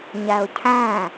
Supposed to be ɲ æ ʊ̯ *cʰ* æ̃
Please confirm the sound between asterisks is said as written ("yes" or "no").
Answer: yes